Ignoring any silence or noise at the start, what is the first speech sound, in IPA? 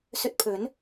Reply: s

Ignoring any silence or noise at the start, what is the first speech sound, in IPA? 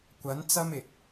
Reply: kʷ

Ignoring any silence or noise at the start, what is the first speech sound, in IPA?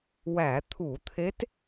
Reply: w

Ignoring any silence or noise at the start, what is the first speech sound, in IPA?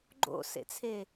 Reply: ɡ͡ǃ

